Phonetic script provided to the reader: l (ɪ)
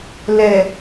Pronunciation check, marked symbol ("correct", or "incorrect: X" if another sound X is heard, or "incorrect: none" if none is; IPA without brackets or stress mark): incorrect: ɛ